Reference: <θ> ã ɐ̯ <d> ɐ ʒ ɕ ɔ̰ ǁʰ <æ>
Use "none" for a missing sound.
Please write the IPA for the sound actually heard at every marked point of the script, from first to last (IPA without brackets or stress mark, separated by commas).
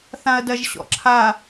θ, d, a